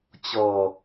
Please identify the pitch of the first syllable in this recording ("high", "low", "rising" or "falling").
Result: low